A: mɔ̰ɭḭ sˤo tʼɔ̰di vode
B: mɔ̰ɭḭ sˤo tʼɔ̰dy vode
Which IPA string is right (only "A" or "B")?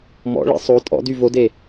B